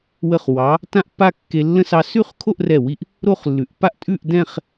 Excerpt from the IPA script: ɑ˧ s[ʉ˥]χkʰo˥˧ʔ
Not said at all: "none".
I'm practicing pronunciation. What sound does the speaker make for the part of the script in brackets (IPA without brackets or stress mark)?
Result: ʉ˥˧